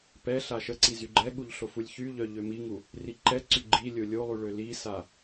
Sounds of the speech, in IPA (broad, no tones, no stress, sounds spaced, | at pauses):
p ɛ ɬ a ʃ ə ǀ i z y ɡ͡ǃ ɛ ɠ u ʎ ɬ o f u lʲ ç y ʎ œ ʎ ø m i ŋ u | r i ǃ ɛ ǀ y ɡ͡ǃ i lʲ o lʲ o lˠ y ɭ ø l i s a